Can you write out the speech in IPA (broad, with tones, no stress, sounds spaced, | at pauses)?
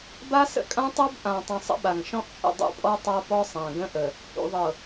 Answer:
b a˦ s ə̰˦ kʼ ã˦ tˤ ɤ˦ b ʔ ã˨ tˤ ə̃˨ sˤ ə̰˦ ɓ a˨ ŋ ʃ ɔ̃˦ ʔ t͡ʃʼ ə̰˦˨ dˤ ṵ˦ pʼ ɔ˦ tˤ a˦ p ɔ˦ sˤ ã˨ ɡ ə̃˦ ʔ ə˨ | h ṵ˨ ðˤ ɤ˨